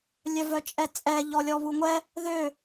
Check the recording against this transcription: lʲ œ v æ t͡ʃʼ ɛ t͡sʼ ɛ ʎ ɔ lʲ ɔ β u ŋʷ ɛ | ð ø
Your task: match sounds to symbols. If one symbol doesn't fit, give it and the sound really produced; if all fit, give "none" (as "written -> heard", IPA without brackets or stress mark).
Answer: æ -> œ